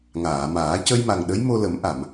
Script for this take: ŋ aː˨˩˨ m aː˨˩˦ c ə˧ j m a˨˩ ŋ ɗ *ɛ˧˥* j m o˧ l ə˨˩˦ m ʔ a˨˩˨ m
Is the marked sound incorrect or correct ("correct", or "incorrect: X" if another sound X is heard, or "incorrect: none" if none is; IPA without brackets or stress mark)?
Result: incorrect: ə˧˥